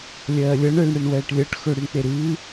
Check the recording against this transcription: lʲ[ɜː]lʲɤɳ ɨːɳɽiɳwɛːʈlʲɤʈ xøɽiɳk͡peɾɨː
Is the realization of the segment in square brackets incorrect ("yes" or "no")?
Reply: no